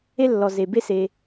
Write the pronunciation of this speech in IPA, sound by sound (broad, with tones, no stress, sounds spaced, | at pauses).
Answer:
e˥ lː ɔ˩ z e˩ b e˦ s e˩